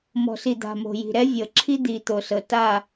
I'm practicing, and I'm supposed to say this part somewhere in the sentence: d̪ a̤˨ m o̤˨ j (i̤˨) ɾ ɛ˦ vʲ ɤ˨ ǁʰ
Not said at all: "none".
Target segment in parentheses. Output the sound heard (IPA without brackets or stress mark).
i̤˨